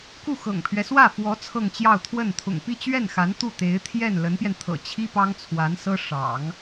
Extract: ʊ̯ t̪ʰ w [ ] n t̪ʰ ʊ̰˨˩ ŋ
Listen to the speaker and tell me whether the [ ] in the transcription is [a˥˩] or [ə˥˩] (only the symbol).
ə˥˩